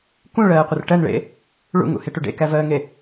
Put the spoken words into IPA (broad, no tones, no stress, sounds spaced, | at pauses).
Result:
k ũ ɭ ɜː qʷ ə r ʈ ɜ n ɭ ḛ | ɭ ṵ ŋ ṵ h e ʈ u ɖ ḛ k æ v ɜː ŋ e